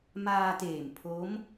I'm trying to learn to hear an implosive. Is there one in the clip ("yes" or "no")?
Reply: no